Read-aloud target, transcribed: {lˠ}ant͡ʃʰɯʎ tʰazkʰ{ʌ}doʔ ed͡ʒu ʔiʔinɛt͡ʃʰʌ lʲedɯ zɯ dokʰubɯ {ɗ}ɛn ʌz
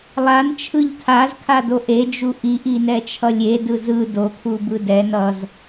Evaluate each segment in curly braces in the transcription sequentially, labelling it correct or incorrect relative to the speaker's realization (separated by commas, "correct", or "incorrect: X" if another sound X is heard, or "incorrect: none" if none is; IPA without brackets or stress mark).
correct, incorrect: a, incorrect: d